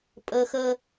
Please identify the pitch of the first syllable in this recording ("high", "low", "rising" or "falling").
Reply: high